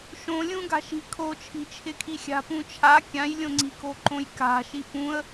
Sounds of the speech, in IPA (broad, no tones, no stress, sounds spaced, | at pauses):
ʃ õ lʲ ũ ɡ a̤ ʃ i̤ kʰ o t͡ʃʰ i̤ t͡ʃʰ ɪ kʰ i xʲ a̤ p ũ t͡ʃʰ a kʲ ã j lʲ õ ŋ͡ǀ i̤ k o ǃ õ j k a̤ ʃ i p ũ ə̯